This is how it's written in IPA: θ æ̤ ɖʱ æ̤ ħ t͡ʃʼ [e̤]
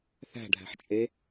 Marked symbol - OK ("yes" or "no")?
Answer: no